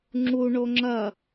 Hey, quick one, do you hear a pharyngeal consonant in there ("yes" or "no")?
no